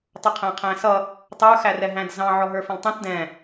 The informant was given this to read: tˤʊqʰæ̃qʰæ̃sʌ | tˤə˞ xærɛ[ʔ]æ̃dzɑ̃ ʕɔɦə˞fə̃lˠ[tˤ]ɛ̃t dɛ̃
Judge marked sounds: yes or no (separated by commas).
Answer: no, yes